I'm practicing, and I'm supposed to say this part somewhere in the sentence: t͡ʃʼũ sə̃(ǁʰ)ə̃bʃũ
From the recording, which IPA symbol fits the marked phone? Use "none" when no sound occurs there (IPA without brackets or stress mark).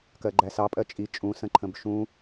ǃʰ